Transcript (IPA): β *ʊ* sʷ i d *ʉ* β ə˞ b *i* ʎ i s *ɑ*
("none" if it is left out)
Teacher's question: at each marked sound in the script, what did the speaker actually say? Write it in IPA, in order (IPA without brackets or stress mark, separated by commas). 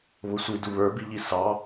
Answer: ʊ, u, i, ɑ